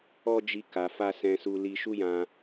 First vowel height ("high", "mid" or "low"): mid